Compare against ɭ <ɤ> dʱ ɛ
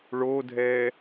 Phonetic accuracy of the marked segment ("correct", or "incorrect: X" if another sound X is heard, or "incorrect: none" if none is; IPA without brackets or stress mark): incorrect: o